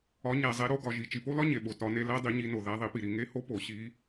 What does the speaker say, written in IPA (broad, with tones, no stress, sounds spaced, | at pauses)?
ɒ˨˦ ɲ æ˨ zˤ e˨˦ ɾ o˨˦ ɡ ɒ˨ ʒ i˨ t͡ʃ i˨ p o˦˥ l ɒ˦˥ ɲ e˨ ɓ o˨ t ɒ˨˦ n e˨˦ l æ˦˥ dˤ i˨˦ ɲ i˨˦ n o˨ ð æ˨˦ ðˤ i˨˦ p i˨ ɾ i˨ ŋ e˦˥ h o˦˥ p o˨˦ ɕ i˦˥